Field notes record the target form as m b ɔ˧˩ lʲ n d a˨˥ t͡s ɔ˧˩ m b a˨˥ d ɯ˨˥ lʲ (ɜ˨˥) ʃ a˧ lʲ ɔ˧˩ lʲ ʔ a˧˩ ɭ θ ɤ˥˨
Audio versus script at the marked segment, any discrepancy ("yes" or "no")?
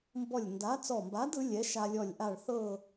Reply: yes